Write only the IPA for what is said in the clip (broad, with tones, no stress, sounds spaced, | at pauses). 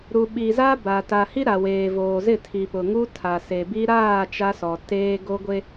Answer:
ɾ u˨ ɓ i˨ z a˦ b a˨ t a˨ h i˦ ɾ a˨ w eː˨ v oː˨ z ɪ˦˨ tʰ i˨ p ʊ˨ ŋ u˦ tʰ a˨ s e˨ b i˦ ɾ aː˦˨ t͡ʃ a˦ s ɔ˨ t eː˦ ɡ o˦ ɡʷ e˦